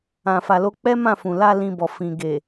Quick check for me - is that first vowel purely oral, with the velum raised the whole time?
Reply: no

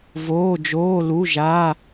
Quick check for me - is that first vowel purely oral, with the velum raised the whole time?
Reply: yes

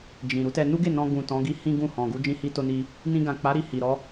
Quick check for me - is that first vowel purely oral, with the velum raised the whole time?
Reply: no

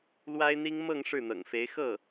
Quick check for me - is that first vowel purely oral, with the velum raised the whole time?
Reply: yes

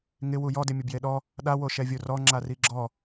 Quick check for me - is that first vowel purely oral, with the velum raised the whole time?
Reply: yes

